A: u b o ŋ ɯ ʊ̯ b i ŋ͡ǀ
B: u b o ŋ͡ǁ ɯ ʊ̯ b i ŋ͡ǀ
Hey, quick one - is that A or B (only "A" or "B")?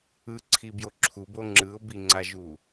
B